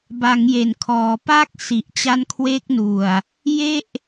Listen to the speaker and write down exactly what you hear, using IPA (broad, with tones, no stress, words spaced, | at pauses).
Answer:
ba˩˦ŋje˩˦nkʰɔː˩˦ pa˦˥k̚ si˨˩ʔt͡ɕa˦˥nkʰwe˦˥k̚nu˨˩a̯ | je˥˩ʔ